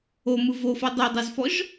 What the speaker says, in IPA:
o m ɯ v o f ɔ dˤ o dˤ e z f ɔ ʒ

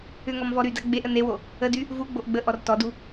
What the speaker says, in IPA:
ʏ ŋ ɔ m v ɔ ɾ y d a ɡ͡b e ʔ ə n e w o | ə d y | v u ɡ͡b o ʔ ɡ͡b ə ʔ ɔ r t ɔ d u

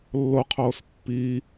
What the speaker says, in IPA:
lː o qʰ oː s pː iː

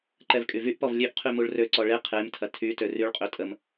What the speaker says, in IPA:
ǃ ɛ v kʼ y v y ʔ p ɔ v lʲ ø ʔ qʰ y m u ɭ r ø ǀ ɔ ɭ e qʰ e m tʰ ɐ tʰ y t ø r y ɭ qʼ ø tʼ ə m

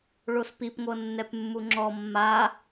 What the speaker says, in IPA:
ɭ o s p i p ŋʷ ɤ nː ɛ p mː u ŋ͡ǁ ɔ mː a

